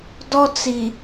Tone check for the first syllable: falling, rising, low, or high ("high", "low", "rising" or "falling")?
high